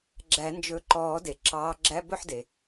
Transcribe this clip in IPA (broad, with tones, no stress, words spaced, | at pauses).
ɡ͡ǁæ˨˩˦nd͡ʒɵ˨˦ ǃɔː˨˩˦de˩ ǁɑː˨˦ɡ͡ǁæ˧˥˧ bɵ˥˨ħde˩